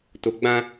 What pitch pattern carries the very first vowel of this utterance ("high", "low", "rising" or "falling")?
low